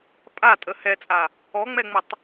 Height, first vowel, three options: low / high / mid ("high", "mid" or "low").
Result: low